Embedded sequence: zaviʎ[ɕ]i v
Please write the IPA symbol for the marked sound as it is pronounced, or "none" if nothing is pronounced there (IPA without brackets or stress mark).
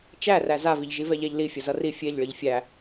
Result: ʒ